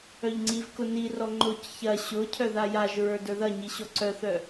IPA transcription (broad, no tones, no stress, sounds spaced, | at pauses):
œ ʎ ŋ͡ǀ i v k ʊ n i r ɔ ŋ͡ǃ ʊ c ç ɐ ɕ ʊ cʰ œ ð a j a ʒ ɹ ə˞ d ə˞ ð ɐ ɲ i ɕ ɔ ǀ œ θ œ